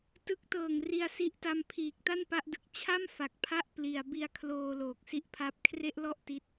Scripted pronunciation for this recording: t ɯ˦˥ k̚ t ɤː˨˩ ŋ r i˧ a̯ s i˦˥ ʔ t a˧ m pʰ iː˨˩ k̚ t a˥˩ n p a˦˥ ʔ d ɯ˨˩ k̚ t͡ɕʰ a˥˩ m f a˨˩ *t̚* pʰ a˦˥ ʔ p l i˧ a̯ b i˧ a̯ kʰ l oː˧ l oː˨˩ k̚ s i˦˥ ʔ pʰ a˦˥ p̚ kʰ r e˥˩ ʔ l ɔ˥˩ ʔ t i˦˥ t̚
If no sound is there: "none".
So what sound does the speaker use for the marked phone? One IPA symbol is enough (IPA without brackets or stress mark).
k̚